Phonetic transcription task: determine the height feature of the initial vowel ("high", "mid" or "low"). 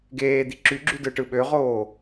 mid